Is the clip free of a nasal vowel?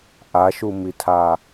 yes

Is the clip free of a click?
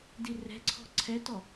no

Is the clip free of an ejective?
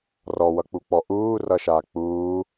yes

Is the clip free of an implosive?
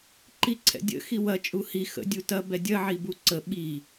no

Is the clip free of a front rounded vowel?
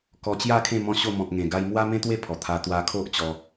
yes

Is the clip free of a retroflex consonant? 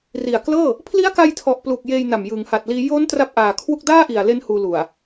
yes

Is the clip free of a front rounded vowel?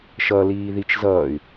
no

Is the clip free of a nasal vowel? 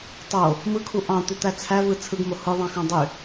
no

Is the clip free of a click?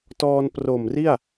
yes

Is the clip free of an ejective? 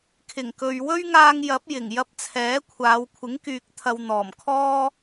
yes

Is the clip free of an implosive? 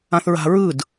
yes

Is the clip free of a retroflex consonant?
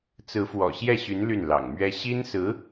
yes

